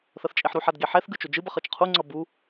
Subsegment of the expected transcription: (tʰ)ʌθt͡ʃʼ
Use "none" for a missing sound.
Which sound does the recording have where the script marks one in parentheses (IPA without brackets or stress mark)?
θ